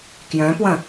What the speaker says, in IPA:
k j œ̃ p w ɐ̃

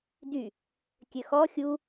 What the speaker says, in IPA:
d y | kʲ ø x ɔ xʲ u

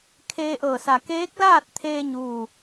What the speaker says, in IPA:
kʰ eː˧ ʔ ɤː˧˩ s a˧˩ k eː˧˥ k̚ l aː˥˨ t̚ t̪ʰ eː˧ ɲ uː˥˨

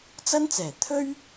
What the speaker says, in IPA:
t͡s ɐ˥ n t͡s ɛː˨˩ t̪ʰ ɵ˥ ɥ

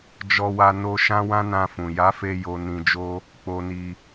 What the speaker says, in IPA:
d͡ʒ ɔ˧ w a˧ n o˧ ʃ ã˦ w ã˦ n ã˧ f ũ˨ j a˨˦ f e˧ j o˧ n ĩ˧ d͡ʒ o˦ | k͡p o˧ n i˧

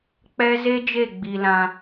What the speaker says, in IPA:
k͡p ɛ˦ z e˦ d͡ʒ e˦˨ ɡ͡b i˧ l ã˧

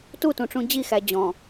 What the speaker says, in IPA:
t u t ũ ʈ͡ʂ ũ d͡ʑ i x æ d͡ʑ ɔ̃

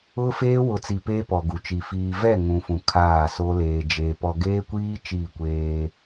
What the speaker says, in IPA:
ʊ˦ f eː˦ w ʊ˨ t͡s i˨ p eː˦ p ɔ˨ ɡ u˨ t͡ʃ i˨ f iː˨ v ɛ˦˨ ŋ ũ˨ f ũ˨ kʰ aː˦˨ s o˦ l eː˨ d͡ʒ e˨ p ɔ˨ ɡ eː˦ kʷ iː˦ t͡ʃ iː˦˨ kʷ eː˦

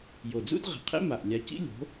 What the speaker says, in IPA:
j o˨˩ d͡z ṵ˥ d ʁ i̤˧˩˧ qʰ ḛ˥ m a˨˩ ʔ lʲ a˨˥ c ḭ˥ lʲ o̤˨˥

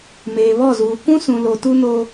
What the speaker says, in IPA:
m eː˨ β ɔ˦˨ z uː˨ k ũ˦ s ũ˨ l o˨ t u˦ n o˦

